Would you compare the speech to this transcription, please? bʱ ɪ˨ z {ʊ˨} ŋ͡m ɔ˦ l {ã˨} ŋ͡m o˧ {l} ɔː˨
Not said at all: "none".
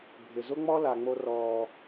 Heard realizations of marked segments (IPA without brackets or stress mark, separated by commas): ʊ˦, a˨, r